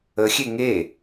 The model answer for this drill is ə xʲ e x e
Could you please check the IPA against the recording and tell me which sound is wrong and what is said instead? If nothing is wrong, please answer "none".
x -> ŋ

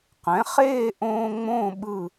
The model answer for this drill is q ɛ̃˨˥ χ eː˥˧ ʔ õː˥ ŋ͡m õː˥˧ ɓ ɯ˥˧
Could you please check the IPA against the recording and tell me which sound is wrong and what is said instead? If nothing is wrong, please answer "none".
none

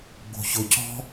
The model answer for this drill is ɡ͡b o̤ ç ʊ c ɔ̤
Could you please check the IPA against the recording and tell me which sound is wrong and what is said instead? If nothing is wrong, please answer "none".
none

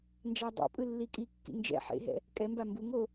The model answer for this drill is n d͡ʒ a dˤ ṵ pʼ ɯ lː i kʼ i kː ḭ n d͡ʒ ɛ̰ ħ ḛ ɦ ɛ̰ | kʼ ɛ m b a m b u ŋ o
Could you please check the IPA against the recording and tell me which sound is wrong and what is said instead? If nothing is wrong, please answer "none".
none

